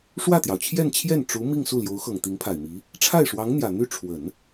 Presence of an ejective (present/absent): absent